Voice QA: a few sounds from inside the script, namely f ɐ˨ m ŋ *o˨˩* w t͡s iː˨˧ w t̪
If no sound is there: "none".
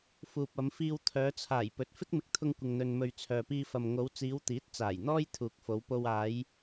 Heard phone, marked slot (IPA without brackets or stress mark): o˨˧